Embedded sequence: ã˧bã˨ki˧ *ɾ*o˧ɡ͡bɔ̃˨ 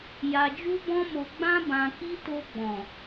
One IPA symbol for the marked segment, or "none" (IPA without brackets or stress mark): t